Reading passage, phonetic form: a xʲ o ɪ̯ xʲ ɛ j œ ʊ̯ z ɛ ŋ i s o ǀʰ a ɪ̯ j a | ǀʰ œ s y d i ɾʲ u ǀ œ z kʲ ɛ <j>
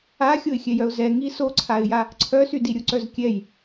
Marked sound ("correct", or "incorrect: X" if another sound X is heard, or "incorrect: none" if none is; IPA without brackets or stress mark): correct